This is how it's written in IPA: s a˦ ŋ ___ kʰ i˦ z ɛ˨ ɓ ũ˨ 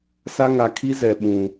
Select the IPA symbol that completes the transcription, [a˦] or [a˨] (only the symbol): a˨